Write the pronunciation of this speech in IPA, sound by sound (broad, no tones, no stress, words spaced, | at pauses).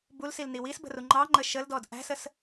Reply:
bulsilni wisbə̤ru ŋ͡ǃɑŋ͡ǃə ʃəldɔd ʔæ̤səs